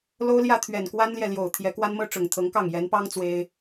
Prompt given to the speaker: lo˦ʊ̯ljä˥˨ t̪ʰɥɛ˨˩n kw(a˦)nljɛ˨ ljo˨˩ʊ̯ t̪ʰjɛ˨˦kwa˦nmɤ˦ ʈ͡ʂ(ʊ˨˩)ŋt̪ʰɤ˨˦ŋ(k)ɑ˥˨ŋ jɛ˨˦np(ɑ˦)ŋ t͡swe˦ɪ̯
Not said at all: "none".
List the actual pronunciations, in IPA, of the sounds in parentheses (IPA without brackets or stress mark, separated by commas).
a˦, ʊ˨˩, k, ɑ˦